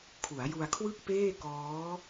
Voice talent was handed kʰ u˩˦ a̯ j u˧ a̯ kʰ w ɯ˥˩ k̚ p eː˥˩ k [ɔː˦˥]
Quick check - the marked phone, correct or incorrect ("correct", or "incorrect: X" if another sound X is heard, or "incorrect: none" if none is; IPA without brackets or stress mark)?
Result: correct